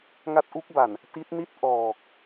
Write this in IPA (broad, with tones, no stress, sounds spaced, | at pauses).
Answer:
ŋ a˦˥ t̚ ʔ u˦˥ k̚ b a˨˩ n | t i˦˥ t̚ n i˥˩ t̚ ʔ ɔː˨˩ k̚